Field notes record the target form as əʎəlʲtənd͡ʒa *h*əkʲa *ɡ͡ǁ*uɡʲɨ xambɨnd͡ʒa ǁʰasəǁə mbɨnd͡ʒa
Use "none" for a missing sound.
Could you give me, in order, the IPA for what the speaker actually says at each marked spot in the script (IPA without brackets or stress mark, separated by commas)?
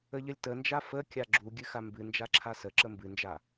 f, ɡ͡ǁ